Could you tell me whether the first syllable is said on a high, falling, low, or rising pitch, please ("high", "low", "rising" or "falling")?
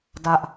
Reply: high